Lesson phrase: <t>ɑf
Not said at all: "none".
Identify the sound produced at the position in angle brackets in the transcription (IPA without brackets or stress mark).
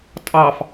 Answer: tʼ